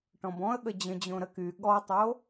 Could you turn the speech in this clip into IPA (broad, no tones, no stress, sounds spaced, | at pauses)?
ʈ ɔ̃ b ɔ̃ ə̯ ɠ ə d͡ʑ ə̃ d͡ʑ õ ɾ ə k y ɠ ɔ tˤ o